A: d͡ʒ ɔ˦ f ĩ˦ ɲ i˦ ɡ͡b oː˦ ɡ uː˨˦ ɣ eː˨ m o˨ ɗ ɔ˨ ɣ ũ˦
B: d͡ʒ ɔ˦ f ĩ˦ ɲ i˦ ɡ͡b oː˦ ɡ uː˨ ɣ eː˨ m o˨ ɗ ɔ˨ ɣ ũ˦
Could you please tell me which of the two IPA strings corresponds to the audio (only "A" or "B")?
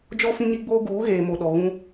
A